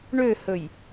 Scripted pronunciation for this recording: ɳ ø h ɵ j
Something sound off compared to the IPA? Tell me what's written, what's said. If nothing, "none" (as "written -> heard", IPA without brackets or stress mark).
none